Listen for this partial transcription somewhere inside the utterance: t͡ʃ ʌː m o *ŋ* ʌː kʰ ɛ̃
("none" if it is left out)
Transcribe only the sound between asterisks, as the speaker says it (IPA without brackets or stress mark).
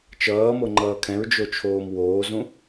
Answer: ŋ͡ǃ